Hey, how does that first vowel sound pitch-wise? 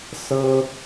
high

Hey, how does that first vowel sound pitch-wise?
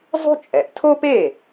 high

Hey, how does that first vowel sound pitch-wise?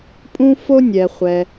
high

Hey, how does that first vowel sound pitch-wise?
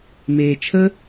low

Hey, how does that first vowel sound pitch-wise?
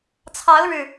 rising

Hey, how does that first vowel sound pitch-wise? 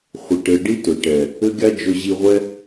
low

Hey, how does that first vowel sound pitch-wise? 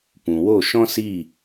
low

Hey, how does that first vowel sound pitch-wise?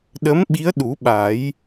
rising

